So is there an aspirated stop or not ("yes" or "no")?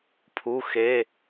yes